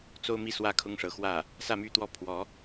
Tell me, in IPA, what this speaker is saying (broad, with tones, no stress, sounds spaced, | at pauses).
t͡s o˥ ʊ̯ m i˥˩ s w ä˥ kʰ ʊ˥ ŋ ʂ ɤ˧˥ x w ä˥˩ | s ä˥˧ m y˥˧ t̪ w ɔ˥˩ pʰ w ɔ˧˥